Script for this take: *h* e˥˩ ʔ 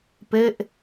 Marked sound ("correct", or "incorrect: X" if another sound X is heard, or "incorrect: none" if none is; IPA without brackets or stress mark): incorrect: p